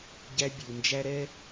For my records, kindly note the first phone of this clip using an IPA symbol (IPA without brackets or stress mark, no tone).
ɟ